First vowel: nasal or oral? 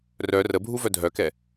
oral